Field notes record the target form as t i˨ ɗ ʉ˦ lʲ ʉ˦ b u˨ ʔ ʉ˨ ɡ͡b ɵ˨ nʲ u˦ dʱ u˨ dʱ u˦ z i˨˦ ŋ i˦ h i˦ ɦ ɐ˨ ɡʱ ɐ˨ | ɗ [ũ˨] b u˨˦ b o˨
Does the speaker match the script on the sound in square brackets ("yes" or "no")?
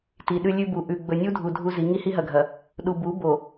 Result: no